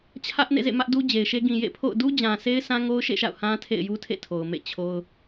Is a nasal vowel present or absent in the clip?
present